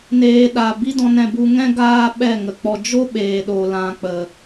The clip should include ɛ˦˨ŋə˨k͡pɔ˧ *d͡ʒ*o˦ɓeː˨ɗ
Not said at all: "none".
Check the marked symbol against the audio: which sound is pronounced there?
d͡ʒ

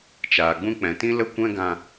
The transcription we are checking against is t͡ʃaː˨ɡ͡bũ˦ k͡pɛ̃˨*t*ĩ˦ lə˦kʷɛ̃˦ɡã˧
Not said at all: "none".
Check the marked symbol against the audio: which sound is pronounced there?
t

